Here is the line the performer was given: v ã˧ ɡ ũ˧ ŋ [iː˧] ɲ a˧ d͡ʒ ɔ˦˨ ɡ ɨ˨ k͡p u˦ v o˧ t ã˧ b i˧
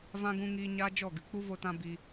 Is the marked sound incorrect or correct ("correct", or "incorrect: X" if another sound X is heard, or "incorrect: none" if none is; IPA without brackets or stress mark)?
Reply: correct